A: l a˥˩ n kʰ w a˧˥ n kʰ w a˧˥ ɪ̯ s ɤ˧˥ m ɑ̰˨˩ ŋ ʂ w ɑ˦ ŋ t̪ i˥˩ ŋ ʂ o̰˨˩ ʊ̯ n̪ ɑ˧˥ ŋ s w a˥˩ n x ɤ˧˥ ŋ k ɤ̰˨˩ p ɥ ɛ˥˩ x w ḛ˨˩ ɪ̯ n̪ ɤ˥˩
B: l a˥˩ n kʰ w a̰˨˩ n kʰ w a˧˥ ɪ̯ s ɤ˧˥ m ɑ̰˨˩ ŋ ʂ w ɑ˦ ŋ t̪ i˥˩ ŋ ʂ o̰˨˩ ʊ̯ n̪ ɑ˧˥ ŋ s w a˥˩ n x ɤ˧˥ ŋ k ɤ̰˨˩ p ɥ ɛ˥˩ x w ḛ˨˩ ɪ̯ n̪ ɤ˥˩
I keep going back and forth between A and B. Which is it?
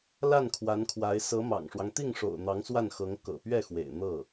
A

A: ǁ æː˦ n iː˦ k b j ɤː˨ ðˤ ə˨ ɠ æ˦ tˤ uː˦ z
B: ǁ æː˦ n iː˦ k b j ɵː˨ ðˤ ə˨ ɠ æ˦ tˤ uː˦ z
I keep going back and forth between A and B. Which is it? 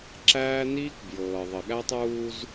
A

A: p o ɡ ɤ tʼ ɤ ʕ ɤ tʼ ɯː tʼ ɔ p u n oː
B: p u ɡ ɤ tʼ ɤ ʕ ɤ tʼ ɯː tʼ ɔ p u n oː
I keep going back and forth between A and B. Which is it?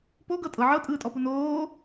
A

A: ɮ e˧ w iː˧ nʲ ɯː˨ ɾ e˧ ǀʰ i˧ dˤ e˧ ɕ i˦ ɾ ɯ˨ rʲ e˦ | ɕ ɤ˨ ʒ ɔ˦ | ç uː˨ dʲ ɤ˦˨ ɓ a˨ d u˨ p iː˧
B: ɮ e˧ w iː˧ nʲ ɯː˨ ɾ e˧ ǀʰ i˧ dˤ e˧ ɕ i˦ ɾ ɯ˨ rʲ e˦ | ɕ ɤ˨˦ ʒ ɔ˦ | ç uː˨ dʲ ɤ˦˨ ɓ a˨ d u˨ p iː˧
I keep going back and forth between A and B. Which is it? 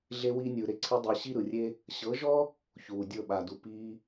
B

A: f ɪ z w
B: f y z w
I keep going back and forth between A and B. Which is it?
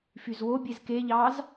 B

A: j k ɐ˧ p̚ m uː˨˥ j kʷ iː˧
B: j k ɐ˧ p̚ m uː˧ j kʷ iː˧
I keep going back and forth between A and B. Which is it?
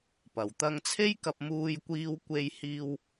B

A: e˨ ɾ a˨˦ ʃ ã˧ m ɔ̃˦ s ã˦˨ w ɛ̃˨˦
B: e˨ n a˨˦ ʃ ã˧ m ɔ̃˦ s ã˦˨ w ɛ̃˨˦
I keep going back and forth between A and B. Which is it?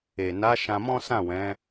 B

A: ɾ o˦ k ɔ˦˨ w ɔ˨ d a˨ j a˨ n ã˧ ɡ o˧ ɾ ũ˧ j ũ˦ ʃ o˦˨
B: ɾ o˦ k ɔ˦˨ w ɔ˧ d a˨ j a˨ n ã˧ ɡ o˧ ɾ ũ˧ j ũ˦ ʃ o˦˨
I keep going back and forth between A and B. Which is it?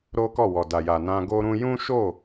A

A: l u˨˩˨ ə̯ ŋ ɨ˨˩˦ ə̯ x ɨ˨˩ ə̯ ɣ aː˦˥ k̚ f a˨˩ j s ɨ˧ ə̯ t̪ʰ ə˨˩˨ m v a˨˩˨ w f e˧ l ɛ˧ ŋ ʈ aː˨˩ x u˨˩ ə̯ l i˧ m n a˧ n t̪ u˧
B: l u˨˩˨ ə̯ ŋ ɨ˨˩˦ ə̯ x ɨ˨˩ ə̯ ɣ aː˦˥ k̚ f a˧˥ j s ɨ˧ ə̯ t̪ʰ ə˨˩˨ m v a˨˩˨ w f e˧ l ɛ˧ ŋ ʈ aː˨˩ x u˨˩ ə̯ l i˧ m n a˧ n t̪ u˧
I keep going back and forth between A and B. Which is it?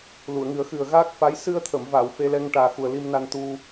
B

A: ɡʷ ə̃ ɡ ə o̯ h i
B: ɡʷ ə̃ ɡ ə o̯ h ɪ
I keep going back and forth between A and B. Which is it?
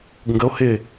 B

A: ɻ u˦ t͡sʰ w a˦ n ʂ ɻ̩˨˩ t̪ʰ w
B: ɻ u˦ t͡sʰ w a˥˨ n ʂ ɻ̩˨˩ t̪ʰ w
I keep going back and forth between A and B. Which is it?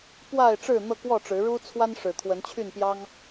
A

